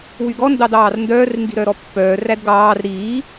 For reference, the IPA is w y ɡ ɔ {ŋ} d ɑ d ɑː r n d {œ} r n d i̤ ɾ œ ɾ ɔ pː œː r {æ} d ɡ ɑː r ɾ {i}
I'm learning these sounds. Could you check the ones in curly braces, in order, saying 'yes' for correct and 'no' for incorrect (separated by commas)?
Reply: no, no, yes, no